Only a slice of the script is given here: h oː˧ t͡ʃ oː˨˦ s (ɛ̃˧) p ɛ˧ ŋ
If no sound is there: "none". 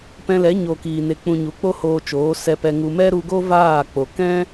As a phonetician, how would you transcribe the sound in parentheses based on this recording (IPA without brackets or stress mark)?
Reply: ɛ˧